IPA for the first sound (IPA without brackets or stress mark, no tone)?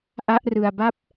ʔ